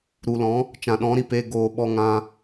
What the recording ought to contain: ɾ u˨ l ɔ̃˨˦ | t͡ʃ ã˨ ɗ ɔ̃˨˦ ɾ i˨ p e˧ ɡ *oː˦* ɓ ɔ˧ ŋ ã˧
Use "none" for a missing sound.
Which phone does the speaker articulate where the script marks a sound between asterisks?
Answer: oː˨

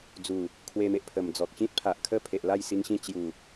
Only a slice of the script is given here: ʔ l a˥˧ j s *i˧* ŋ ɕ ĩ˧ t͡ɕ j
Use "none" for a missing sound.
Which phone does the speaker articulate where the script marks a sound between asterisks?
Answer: i˧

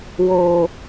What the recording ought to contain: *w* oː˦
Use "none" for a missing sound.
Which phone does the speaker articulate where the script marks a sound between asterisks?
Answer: w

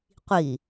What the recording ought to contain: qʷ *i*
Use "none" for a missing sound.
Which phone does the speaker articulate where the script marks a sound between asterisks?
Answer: i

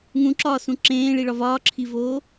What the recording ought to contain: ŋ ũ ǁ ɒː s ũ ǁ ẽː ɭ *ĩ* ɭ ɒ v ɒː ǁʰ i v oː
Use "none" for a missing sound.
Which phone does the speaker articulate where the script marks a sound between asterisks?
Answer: i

